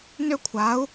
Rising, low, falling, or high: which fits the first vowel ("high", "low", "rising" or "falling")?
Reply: high